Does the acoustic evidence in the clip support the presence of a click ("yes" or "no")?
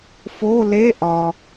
no